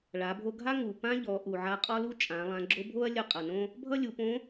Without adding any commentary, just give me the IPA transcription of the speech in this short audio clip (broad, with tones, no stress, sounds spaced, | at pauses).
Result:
ɭ a˩˧ bʱ o˧ ɡʱ a˥ ŋ u˩ p ã˥ ʎ ɔ˩˧ ʔ u˩ ʕ a˧ qʼ ɔ˥ l u˥ t͡ʃʼ ã˩˧ lˠ ã˩˧ ɡ͡ǁ o˧˥ bʱ o˥ ɐ̯ lʲ ʌ˧ qʼ ʌ˩ n õ˥ | bʱ ʌ˥ lʲ u˩˧ p õ˧˥